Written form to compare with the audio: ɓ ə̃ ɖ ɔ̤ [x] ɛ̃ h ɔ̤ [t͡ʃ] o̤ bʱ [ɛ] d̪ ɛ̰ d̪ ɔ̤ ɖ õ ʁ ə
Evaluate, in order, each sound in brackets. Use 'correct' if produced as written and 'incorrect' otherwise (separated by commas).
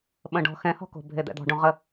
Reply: correct, incorrect, incorrect